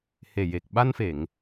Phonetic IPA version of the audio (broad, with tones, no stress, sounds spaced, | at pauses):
h e˨˩ j e˨˩ k̚ ɓ a˧ n f e˨˩˨ ŋ